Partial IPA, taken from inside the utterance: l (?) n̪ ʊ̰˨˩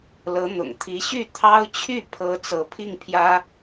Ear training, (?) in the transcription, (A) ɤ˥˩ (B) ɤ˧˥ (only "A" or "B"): B